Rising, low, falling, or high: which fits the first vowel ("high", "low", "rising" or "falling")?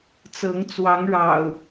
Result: rising